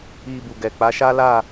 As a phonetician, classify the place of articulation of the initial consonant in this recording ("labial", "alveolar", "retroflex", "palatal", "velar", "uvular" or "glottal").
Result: labial